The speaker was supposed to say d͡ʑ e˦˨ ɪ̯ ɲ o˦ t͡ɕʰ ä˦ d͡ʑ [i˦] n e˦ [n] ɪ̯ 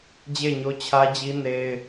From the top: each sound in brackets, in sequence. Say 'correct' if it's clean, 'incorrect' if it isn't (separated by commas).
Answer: correct, incorrect